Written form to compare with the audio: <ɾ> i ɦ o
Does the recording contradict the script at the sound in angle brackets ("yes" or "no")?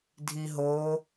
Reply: yes